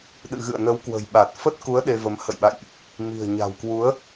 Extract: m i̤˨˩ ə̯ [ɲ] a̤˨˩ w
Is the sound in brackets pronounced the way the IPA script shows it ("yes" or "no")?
yes